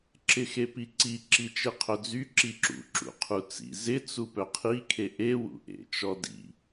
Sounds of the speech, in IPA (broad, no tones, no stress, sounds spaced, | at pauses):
ǁ ɪ x e p i ǀ i ǁ i t͡ʃ e qʰ œ d͡z y ǁ i ǁ ṵ ǁ ṵ qʰ u t͡s ḭ z ɪ t͡s u p œ qʰ i kʰ e ʔ e w ṵ ʔ ḛ t͡ʃ ɔ d ḭ